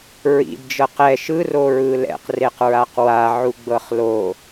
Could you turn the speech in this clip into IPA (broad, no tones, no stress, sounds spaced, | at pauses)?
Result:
ɹ ḭ d d͡ʒ ɤ q ɛ ʃ ɯ r o ɹ ɯ l ɛ̰ q r e q ɹ a q w a ʕ u ɡ͡b ɤ χ l o